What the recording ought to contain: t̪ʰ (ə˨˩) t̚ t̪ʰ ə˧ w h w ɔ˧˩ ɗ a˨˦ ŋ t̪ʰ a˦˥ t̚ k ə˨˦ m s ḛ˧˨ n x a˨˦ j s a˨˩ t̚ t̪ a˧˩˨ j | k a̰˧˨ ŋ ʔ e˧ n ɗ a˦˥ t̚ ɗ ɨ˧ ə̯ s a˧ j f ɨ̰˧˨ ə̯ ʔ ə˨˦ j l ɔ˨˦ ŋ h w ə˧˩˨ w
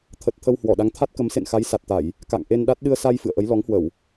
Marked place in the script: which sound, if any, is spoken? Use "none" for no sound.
ə˨˩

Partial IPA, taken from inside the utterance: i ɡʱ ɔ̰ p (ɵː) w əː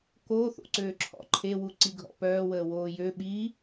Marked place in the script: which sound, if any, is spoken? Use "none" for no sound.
œː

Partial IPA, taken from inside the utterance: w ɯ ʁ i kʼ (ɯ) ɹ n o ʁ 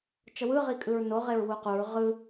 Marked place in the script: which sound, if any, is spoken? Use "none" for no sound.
ɯ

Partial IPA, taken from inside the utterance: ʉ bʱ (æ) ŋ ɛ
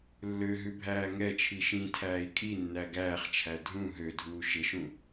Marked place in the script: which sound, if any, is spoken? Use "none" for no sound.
æː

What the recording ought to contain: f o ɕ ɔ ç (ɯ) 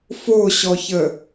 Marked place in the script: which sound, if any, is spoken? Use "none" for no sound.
ə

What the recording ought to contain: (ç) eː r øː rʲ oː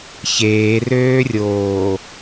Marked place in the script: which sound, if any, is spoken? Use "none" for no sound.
ç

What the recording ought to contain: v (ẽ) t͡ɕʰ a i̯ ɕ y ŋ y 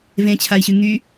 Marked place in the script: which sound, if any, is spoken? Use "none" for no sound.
ẽ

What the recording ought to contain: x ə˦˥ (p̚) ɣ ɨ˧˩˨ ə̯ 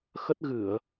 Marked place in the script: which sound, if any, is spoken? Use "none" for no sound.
t̚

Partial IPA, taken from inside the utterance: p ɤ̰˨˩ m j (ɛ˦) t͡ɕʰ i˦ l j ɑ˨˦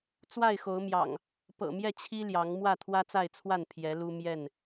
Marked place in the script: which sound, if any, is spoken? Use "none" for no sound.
ɛ˥˨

